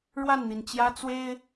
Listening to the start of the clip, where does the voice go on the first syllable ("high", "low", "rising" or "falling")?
falling